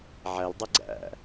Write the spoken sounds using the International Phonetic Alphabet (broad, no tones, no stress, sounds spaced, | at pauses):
ʕ æ l dˤ ɛ ɡ͡ǀ æ̰